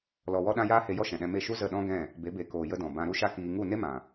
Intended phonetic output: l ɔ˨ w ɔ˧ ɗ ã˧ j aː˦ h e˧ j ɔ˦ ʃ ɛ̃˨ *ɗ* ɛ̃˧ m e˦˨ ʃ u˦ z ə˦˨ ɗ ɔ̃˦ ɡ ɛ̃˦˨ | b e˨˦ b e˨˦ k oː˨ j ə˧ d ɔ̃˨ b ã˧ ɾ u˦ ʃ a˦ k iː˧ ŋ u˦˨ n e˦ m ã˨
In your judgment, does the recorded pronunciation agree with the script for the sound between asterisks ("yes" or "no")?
yes